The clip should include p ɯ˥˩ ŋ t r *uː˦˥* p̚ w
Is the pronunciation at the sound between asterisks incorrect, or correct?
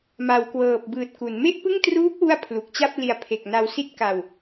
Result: correct